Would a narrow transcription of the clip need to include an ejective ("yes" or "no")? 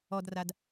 no